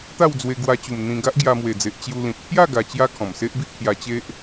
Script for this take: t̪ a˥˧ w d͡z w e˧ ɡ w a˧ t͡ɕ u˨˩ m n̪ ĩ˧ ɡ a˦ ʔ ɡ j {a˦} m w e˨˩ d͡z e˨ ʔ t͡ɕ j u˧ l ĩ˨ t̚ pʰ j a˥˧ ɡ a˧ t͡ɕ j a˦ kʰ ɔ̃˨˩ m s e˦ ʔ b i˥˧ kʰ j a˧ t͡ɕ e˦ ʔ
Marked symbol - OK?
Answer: no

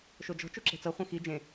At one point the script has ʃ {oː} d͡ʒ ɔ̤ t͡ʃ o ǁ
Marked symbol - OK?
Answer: no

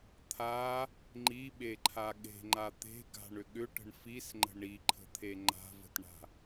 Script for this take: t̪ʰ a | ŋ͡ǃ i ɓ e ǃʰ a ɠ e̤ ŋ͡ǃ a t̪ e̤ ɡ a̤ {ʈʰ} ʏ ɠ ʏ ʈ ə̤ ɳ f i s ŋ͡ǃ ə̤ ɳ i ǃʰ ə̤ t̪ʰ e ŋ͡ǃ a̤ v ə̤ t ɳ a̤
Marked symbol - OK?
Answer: no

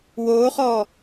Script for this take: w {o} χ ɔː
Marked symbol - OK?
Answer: no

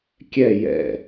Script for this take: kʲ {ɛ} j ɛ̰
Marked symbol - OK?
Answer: yes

